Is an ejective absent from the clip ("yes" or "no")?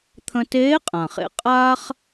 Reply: no